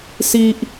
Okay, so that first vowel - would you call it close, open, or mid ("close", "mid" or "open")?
close